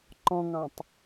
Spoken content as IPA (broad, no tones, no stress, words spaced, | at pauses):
ǃɔ̃ŋɑ̃tˤ